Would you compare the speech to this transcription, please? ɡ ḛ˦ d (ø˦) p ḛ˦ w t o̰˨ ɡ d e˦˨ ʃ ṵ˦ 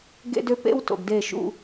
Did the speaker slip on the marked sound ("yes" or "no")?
no